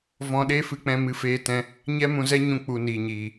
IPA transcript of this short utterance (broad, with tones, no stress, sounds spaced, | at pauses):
v ɔ̃˧ ɗ eː˦ f ɨ˧ k͡p ɛ̃˧ m ɨ˧ f eː˧ t ɛ̃˧ | ɲ ɛ˦ m ũ˧ z ɛ˦ ɲ ũ˧ k͡p u˧ n iː˨ ɲ iː˨